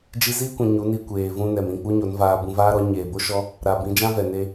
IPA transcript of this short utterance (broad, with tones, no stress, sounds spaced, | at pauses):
d͡ʒ i˧ z iː˦ kʷ ĩ˨ ɲ u˨˦ n i˧ kʷ eː˨ v ũ˧ n ɛ˨ m ĩ˦˨ k͡p u˦ ɲ o˨˦ n v aː˧ b ũ˧ v aː˦ ɾ ɔ˨˦ ɲ eː˨ b o˦ ʃ ɔ˦ | ɾ a˨ b ĩ˨˦ d͡ʒ ã˦ v ɛ˨ n e˧